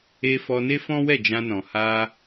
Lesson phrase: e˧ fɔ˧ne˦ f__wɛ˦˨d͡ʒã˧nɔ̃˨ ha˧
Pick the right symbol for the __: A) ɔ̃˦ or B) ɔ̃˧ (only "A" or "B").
A